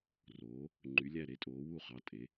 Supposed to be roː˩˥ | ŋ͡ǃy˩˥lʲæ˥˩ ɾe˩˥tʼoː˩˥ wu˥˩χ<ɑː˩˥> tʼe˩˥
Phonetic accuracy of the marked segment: incorrect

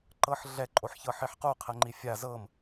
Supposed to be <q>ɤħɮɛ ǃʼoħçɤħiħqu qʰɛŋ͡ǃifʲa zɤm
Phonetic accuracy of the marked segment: incorrect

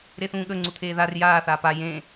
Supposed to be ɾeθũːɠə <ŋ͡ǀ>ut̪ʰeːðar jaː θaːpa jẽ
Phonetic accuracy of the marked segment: correct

